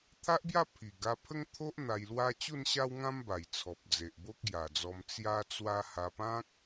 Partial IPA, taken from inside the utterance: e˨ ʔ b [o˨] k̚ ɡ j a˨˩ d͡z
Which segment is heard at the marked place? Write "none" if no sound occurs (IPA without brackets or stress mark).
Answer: o˦